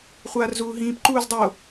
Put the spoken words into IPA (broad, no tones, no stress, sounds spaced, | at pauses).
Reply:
χʷ aː r z uː ɦ ĩː p ǃ uː z dˤ o